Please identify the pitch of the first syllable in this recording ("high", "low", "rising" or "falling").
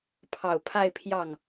low